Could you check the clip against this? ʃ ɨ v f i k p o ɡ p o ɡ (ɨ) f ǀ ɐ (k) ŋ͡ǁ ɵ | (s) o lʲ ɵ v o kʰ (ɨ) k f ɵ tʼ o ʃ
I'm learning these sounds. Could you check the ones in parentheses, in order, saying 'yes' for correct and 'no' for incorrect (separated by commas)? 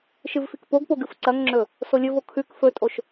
yes, no, yes, no